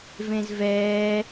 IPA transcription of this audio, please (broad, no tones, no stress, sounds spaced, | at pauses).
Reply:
v ẽ z v ɛː